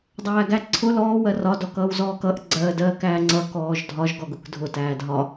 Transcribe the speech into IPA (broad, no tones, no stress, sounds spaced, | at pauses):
dˤ æː ɡ æ ǀʰ ʊ l ɔː w ɜ r ɒ d ɔ k ʌː w z ɔː k ʌ ʔ ɡ͡ǀ ɜː d ɜː k æː ŋ͡ǀ ʌ k ɔː ʒ dʱ ɒ ʒ ɡ ɔ ɡ ʊ k dʱ ʊ t æː dʱ ɒ